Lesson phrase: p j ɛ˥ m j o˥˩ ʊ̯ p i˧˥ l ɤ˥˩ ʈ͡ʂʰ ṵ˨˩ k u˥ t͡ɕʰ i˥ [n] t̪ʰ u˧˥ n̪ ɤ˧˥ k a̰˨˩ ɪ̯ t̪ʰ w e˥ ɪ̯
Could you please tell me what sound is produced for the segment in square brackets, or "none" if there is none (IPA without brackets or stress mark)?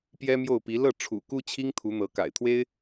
ŋ